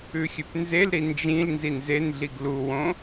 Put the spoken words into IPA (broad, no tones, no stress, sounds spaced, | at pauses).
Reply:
ʉ xʲ ʉ p n z e l ɾ i n d͡ʒ ĩ l n z i n z e n ɮ i ɡ l u w õ